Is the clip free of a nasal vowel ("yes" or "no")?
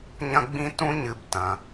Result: no